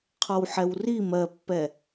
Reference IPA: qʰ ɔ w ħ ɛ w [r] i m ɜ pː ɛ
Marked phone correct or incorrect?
correct